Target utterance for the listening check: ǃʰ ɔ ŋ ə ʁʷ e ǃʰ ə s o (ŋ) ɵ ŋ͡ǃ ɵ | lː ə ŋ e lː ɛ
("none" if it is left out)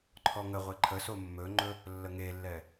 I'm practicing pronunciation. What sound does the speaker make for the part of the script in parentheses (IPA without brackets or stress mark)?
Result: mː